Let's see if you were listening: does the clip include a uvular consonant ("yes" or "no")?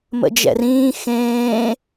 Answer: no